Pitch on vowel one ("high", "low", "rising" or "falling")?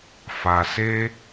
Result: low